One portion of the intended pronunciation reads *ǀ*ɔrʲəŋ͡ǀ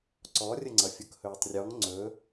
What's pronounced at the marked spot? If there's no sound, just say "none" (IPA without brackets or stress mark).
ǀ